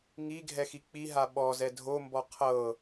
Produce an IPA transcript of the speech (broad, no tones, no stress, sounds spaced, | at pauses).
ŋ i ɡʱ ɛ x i k͡p i ɦ a ɓ ɔ z ɛ dʱ o m b ɔ qʰ ɤ